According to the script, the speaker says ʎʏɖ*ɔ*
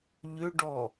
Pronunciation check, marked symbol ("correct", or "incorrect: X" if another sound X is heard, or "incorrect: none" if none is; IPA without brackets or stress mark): correct